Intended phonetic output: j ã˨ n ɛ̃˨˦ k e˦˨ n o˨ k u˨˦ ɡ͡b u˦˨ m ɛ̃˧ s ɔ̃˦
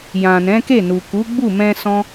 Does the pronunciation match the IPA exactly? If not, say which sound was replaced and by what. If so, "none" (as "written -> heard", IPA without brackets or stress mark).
o˨ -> u˨